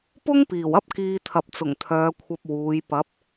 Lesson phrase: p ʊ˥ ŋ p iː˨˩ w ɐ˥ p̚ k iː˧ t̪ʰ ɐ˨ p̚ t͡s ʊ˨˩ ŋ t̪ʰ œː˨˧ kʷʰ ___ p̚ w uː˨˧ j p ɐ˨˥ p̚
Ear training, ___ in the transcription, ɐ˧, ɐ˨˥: ɐ˧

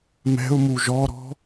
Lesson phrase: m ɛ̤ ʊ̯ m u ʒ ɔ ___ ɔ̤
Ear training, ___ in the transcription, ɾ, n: ɾ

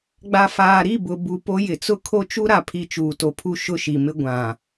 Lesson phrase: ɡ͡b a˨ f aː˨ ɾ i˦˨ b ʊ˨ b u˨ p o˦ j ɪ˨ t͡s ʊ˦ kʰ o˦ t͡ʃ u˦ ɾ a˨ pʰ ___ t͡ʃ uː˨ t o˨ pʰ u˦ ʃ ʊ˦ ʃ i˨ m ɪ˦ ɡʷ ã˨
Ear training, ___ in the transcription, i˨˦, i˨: i˨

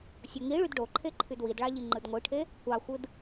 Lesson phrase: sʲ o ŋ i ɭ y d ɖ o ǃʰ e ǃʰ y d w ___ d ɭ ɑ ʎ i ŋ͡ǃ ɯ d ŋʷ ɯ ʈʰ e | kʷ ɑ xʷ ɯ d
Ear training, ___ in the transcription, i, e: i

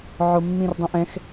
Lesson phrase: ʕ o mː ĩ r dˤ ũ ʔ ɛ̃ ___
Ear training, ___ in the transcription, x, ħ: x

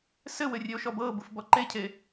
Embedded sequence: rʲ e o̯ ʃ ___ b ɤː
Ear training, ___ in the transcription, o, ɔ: ɔ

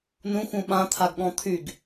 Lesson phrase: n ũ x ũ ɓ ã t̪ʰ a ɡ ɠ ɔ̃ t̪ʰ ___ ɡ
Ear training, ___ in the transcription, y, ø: y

